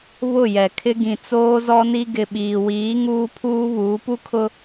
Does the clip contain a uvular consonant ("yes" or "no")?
no